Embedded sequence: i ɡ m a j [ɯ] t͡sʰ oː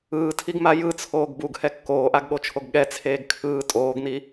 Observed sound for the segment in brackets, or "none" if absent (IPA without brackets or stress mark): ɯ